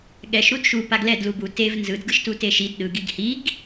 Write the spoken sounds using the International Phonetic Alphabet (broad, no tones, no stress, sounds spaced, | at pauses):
ɠ ɛ ʃ ɾ u d ʃ u p a ɡ l ɛ d l u b u t e v n z ɯ d ɡ ɯ ʃ t u t e ʃ i d ɗ ɯ ɡ i ɡ h i ɡ